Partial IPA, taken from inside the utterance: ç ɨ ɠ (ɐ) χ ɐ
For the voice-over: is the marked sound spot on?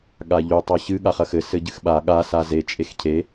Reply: no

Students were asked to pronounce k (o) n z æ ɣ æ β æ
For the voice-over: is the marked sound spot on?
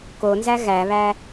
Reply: yes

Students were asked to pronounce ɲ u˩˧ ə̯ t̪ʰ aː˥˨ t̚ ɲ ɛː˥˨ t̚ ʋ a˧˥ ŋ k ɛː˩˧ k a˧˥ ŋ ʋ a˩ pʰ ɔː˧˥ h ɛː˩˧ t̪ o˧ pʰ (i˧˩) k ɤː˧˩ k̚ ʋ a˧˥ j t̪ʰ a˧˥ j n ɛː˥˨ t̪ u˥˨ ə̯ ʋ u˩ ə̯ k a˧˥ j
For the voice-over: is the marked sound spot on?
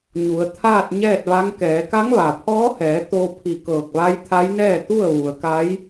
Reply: yes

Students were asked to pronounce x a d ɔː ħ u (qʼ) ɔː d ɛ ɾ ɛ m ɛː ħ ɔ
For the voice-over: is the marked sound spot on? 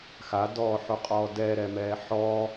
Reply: yes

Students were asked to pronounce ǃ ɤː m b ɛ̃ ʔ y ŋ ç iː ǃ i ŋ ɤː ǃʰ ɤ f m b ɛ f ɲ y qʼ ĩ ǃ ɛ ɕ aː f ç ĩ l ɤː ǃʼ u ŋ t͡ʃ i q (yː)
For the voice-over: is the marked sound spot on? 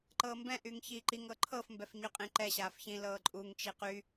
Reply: no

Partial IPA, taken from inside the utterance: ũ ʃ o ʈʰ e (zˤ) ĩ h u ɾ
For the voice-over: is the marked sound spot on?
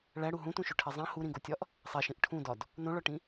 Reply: yes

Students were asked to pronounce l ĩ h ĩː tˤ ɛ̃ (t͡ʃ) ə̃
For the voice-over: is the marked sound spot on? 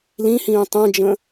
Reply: no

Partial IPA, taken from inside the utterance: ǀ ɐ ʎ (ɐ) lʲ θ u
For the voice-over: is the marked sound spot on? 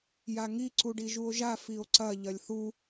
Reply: yes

